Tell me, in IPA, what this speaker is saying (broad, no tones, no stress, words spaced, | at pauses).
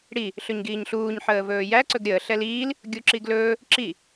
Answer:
ɽi | ɬɵɲɡiːɲɬuːɲ ħəːvɵːjæ ǀɵɡɾʲəː ɬɛliːl | ɡʲuǁiɡlɵː | ǁi